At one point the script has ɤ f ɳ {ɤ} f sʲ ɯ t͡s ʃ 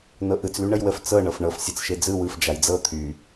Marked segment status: correct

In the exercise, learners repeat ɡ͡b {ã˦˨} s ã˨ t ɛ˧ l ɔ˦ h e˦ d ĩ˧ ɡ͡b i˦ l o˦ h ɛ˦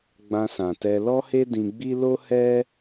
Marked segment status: incorrect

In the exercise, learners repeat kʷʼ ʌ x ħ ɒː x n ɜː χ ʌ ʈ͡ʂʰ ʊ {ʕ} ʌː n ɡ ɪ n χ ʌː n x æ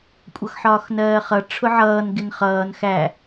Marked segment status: correct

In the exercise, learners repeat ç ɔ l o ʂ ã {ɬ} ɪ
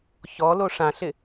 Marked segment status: correct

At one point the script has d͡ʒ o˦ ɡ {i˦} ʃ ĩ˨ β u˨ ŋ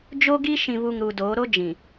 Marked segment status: correct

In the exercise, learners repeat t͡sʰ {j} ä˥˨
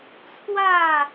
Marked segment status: incorrect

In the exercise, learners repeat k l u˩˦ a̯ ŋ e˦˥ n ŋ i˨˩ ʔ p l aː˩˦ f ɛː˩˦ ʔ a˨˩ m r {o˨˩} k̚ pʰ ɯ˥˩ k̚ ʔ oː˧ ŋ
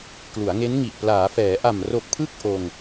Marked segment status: correct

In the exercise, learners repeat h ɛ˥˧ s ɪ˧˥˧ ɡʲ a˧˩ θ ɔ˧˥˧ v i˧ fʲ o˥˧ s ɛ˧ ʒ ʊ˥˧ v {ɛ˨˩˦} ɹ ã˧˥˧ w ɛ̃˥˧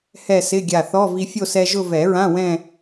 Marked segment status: correct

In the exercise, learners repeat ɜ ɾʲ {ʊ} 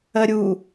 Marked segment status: incorrect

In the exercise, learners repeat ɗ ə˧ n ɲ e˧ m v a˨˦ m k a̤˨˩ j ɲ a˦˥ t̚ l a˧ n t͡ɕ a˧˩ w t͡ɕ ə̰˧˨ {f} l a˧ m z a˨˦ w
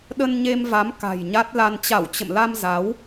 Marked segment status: incorrect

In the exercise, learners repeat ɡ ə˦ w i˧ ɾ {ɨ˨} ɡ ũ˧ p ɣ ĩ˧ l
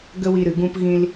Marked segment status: correct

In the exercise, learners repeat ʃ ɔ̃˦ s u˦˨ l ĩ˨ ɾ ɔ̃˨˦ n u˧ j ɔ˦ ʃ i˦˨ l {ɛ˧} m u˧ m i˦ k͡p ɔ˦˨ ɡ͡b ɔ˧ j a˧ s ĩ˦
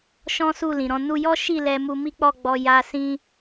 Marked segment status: correct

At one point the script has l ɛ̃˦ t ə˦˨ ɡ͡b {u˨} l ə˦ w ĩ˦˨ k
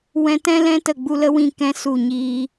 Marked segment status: incorrect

